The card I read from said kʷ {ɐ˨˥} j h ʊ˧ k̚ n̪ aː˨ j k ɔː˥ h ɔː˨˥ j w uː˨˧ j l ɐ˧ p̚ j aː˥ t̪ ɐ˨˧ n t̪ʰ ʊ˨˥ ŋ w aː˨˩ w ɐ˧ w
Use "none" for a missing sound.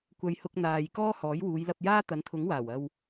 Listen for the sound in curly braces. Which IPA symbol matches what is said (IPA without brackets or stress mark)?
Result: ɐ˧